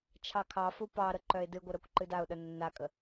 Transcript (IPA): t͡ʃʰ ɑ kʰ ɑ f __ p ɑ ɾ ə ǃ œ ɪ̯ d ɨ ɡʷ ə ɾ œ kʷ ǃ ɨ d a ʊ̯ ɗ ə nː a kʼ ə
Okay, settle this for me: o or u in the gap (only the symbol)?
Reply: u